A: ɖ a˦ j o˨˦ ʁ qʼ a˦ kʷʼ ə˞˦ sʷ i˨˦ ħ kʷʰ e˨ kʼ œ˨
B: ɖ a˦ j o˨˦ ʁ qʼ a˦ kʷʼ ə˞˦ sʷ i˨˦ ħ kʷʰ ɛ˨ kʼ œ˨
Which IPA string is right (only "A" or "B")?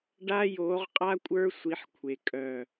A